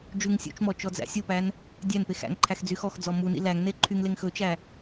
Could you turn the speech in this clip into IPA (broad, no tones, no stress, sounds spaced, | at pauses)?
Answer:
d͡ʒ ʉ ŋ sʲ ṵ t͡ʃ m ɔ t͡ʃ ɔ d͡z æ̰ sʲ o p æ n | dʲ æ n p e x æ̰ ŋ ǃʰ æ x d͡z y x ɔ x d͡z ɔ m u n ḭ l æ ŋ n e ǃʰ y ŋ l e ŋ x ɵ t͡ʃ æ